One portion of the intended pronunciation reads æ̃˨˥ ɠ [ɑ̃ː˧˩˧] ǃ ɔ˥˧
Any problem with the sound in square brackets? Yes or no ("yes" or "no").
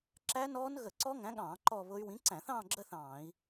no